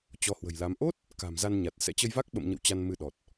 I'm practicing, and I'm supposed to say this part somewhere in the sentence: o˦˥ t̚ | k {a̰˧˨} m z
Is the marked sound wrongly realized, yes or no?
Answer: yes